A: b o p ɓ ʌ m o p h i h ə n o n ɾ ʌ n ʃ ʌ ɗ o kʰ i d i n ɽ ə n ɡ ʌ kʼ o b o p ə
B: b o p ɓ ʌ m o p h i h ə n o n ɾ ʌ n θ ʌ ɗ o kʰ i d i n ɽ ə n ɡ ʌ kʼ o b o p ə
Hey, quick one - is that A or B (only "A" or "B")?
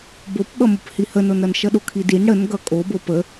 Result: A